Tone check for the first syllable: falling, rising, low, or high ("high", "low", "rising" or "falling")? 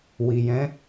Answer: low